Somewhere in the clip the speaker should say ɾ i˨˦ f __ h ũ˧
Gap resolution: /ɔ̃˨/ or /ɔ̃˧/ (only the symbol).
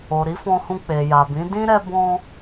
ɔ̃˧